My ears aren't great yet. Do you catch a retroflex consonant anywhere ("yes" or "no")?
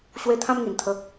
no